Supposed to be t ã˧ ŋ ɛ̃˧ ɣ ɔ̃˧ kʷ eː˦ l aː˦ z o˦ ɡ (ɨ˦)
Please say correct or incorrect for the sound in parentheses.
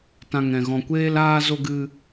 correct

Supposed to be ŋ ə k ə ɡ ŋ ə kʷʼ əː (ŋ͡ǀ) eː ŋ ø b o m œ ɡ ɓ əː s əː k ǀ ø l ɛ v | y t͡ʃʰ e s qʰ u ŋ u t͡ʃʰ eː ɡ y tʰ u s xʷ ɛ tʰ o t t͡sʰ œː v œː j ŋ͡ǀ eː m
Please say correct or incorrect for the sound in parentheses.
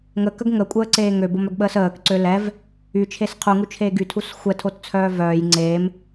incorrect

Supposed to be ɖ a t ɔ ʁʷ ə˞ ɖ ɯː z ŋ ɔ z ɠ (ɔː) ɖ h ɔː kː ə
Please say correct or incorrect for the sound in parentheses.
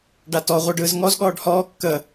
correct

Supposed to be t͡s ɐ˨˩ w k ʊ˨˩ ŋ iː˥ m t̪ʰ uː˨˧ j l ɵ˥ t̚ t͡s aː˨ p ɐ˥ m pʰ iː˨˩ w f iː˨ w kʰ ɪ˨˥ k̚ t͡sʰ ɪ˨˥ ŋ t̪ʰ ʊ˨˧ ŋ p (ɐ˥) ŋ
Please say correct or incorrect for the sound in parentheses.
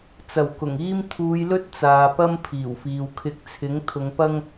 correct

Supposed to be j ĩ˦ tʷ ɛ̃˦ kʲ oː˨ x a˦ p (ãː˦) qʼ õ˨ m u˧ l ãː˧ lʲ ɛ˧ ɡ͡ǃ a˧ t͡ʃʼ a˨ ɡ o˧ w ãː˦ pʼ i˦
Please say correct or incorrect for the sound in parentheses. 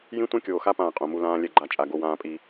incorrect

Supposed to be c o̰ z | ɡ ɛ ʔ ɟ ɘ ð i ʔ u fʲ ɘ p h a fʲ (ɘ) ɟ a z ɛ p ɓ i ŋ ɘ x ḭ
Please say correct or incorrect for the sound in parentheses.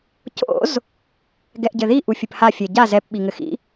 incorrect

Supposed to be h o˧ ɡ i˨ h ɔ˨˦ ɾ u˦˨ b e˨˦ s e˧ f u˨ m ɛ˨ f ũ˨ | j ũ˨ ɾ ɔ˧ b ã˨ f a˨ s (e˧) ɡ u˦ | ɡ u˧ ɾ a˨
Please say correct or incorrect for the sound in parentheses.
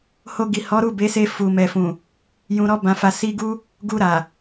incorrect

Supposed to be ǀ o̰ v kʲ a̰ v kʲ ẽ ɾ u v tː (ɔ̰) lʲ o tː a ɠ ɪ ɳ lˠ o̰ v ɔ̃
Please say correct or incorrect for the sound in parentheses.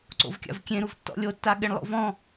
correct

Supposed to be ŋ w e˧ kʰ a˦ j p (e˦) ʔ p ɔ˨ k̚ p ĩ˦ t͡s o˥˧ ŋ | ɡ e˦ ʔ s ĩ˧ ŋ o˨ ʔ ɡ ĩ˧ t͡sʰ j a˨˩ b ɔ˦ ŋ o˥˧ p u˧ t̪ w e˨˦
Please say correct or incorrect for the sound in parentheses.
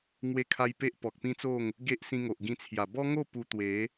correct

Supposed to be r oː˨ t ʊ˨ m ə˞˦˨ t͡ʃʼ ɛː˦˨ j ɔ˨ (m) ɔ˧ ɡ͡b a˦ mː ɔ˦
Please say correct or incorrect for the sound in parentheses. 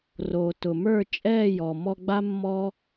correct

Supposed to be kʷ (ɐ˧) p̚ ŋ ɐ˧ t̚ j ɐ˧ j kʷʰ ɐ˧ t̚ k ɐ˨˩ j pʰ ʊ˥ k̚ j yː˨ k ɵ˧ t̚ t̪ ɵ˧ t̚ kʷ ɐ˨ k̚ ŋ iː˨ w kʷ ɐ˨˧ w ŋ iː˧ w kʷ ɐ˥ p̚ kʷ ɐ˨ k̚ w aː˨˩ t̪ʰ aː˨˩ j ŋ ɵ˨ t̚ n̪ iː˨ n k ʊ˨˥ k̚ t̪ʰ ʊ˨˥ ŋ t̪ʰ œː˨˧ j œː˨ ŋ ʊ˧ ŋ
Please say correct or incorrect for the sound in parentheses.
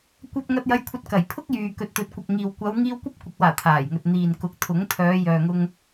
correct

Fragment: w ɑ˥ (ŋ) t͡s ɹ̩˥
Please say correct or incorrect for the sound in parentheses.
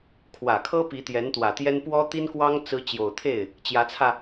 correct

